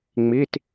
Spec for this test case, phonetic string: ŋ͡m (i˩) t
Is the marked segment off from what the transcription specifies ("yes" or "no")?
yes